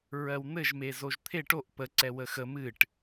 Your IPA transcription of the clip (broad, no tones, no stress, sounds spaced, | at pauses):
ɹ ɜ w n̪ ɘ ʒ m e z o ʒ t̪ʰ e ʈ o ʔ p ə ǀ ɛ w ə x ə m ɨ ʈ